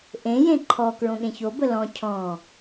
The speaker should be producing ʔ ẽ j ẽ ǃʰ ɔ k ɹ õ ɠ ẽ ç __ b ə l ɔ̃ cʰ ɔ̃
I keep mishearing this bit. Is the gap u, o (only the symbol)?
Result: o